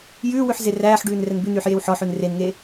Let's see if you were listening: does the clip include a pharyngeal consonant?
yes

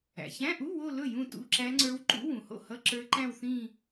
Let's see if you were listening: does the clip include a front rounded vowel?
no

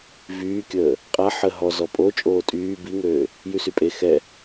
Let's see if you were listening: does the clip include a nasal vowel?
no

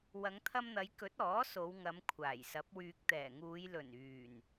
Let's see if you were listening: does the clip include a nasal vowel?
no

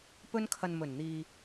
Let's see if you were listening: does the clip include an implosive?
no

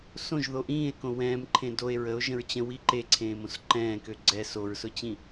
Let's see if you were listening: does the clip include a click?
yes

